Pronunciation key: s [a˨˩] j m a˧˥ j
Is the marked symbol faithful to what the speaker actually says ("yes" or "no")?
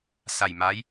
yes